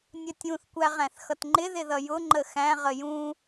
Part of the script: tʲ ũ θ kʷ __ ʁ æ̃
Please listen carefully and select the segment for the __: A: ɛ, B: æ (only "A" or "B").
B